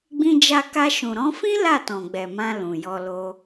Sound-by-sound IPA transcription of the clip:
ɡ͡bĩ˧d͡ʒa˧ka˧ ʃũ˨ɾɔ̃˨˦fĩ˦ la˦˨tɔ̃˨ɡ͡bɛ˨ mã˧lũ˨jɔ˧ lo˧

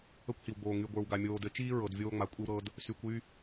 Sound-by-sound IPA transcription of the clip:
ə˦kʷhi˨wɡ͡boː˨ ŋy˨ɡʷə˞˨wɡa˨ mʲoː˨dɘ˨˦t͡ʃiː˦ ɹɤ˨dvʲoː˦ ŋ͡ma˨kʷʼi˦w ɾɤ˦d | sy˨kʷy˦

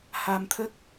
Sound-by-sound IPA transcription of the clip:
ha˧mt̪ʰə˦˥k̚

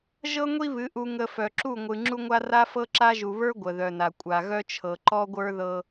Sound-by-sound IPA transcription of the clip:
ʒɤ˦ŋʷi˦βɨ˨˦ ʔu˨ŋə˨ fœ˨ǁu˦˨ ŋʷɨ˨ ŋ͡ǁu˦ŋʷa˦ ra˦fɤ˦ǁa˦ʒu˨ βə˞˦ ɡʷə˨ðœ˨na˨ kʷʼa˨ɣœ˦t͡ʃʰɤ˨ ǃɔ˦ɡʷə˞˦ðɤ˦

